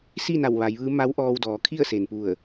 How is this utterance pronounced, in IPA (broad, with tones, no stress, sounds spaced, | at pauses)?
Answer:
s i˥˨ n a˧˩ w ʋ a˩˧ j ʋ ɯː˧˥ m a˧˥ w ʔ ɔː˧ w d ɔː˩˧ kʰ i˥˨ ə̯ s e˩ n p u˧˩ ə̯